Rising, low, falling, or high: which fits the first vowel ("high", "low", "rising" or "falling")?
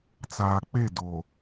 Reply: low